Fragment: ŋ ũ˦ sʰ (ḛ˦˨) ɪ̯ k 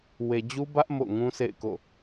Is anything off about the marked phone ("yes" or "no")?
no